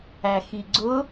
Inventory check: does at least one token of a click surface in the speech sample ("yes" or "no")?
yes